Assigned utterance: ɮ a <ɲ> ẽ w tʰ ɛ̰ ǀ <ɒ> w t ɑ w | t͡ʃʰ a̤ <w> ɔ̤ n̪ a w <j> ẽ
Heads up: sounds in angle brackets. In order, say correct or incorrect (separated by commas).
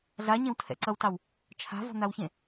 correct, incorrect, incorrect, incorrect